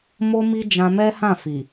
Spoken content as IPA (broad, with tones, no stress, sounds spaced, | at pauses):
m o˦ m i˦ d͡ʒ ã˧ m ɛ˦ h ã˦˨ f i˨